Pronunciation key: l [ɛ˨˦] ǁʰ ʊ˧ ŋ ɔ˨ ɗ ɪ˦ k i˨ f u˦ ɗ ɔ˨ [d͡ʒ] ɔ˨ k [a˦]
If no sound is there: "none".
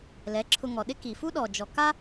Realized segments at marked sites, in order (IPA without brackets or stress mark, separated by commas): ɛ˨˦, d͡ʒ, a˦